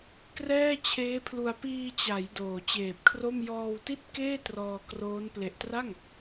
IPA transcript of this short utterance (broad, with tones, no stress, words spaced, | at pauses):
krɛː˥˩t͡ɕʰeː˦˥pʰlu˧a̯ piː˧t͡ɕa˩˦j doː˨˩t͡ɕeː˨˩p̚kʰro˥˩m jɔː˧wti˥˩t̚ keː˥˩ trɔː˧kroː˦˥n ple˨˩ʔtra˥˩ŋ